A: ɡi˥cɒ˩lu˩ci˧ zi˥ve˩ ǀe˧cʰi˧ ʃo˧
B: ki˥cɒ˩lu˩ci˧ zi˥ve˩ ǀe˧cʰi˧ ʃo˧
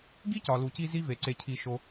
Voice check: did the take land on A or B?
A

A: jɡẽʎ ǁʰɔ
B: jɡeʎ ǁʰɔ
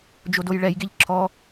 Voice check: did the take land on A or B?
B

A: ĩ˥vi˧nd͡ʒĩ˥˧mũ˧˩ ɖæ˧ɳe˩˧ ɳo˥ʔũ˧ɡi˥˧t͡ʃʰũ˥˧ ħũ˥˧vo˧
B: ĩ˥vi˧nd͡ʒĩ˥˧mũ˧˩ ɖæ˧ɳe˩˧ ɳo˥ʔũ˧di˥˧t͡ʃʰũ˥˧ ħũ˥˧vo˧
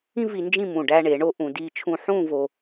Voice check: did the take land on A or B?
B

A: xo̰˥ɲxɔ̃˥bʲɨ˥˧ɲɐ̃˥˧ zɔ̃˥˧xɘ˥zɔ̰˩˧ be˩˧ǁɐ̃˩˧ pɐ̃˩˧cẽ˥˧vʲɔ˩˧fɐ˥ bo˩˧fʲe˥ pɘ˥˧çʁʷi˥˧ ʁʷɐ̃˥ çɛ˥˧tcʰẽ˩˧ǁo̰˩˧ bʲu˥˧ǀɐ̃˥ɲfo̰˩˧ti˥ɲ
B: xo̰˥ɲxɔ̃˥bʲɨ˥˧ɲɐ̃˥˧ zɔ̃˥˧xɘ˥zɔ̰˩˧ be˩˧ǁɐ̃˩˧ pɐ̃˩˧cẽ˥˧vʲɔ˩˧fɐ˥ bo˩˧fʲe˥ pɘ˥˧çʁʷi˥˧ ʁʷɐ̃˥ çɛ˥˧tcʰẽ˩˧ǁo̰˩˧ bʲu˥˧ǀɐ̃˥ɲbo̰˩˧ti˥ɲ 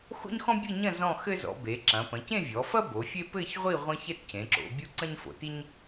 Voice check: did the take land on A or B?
A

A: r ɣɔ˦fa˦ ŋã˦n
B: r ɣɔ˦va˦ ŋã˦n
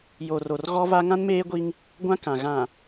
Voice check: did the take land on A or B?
B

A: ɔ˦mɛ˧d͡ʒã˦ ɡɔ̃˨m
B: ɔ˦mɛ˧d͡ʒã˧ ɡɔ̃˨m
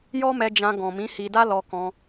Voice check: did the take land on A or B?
B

